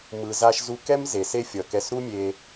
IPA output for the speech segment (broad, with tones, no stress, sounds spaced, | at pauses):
m ɯ˩ z a˧ ʃ z u˧ k ɛ˥ m z e˩ s e˥ fʲ ʌ˩ k ɛ˧ s ɾ u˥ mʲ e˧